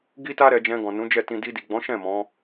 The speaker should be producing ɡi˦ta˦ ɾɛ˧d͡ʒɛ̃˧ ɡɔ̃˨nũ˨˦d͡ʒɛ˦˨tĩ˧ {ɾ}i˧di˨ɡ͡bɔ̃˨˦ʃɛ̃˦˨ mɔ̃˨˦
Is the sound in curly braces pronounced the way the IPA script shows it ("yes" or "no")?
no